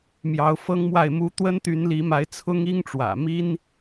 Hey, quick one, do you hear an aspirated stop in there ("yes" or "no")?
yes